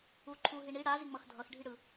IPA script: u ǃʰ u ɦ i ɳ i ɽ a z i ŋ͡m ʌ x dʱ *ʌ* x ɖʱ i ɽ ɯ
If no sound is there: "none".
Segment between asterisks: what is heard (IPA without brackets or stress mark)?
ʌ